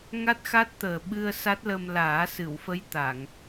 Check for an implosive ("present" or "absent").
present